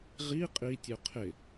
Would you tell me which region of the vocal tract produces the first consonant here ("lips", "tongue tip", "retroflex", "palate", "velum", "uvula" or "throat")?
uvula